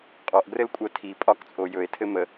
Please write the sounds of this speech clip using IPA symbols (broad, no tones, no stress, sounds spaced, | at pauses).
qʼ ɔ ʔ ɡ r ɘ l kʷʼ ɜ tʰ i pʼ ɒ k t͡sʼ o j ɵ e̯ tʰ ɘ m ə